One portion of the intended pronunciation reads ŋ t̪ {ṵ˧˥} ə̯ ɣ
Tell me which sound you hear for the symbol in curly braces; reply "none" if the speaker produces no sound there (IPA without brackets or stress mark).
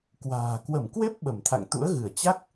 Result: ṵ˧˥